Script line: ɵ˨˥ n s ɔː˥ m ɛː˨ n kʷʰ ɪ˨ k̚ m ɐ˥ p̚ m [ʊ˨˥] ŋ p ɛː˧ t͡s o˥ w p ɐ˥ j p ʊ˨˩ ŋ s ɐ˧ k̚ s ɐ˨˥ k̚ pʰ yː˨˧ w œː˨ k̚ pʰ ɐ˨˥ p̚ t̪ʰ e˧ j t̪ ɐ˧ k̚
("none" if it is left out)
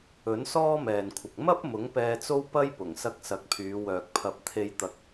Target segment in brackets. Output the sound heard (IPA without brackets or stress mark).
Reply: ʊ˨˥